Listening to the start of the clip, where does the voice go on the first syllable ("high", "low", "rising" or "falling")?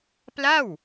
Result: falling